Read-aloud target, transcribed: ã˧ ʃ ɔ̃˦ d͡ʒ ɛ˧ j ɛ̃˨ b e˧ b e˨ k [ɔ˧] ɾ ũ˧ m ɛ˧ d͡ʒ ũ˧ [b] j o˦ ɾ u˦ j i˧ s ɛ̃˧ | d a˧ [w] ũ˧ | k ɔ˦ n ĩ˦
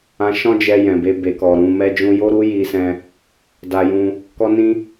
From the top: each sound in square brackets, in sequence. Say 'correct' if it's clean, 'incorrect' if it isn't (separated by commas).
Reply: incorrect, incorrect, incorrect